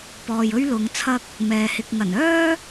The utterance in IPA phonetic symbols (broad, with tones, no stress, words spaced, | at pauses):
pɔː˨jɵ˥ɥ lʊ˨˧ŋ t͡sʰɐ˥k̚ | mɛː˨hɪ˨k̚ ŋɐ˨˩nœː˥